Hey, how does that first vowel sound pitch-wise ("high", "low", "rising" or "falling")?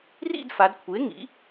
falling